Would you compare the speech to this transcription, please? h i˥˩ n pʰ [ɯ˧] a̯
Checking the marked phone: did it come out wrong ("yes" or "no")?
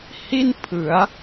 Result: yes